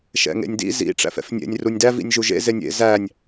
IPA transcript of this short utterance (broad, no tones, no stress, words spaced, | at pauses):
ʃɛ̰ŋḛnʲdḭ zḭ ʈ͡ʂæ̰fɛ̰fnʲḛnʲ runʲdæv ḭnʲʒuʒḛ zenʲḛ zænʲ